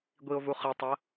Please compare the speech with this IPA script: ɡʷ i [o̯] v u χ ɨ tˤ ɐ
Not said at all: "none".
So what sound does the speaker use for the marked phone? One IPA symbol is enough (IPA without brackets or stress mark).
o̯